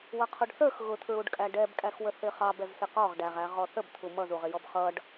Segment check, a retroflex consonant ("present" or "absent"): present